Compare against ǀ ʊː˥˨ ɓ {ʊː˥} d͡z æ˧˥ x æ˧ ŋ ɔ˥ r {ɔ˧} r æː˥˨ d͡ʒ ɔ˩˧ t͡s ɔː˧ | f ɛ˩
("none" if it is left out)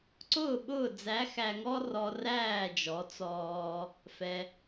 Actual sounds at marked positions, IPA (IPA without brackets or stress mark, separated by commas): ʊː˥˨, ɔ˧